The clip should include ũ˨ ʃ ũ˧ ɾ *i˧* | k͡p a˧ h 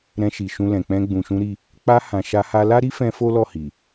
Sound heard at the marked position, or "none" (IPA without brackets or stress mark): i˧